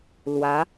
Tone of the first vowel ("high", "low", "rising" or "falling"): rising